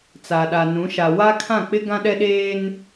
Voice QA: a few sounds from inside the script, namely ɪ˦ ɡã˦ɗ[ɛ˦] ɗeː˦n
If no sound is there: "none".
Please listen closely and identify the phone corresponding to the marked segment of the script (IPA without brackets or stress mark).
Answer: ɛ˦